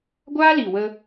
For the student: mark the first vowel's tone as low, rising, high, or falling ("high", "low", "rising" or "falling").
high